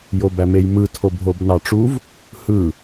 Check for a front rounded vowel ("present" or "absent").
absent